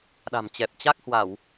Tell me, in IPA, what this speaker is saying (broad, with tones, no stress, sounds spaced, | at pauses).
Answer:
ɗ a̤˨˩ m t͡ɕ ɛ˨˩ p̚ t͡ɕ a˦˥ k̚ h w a˧˩˨ w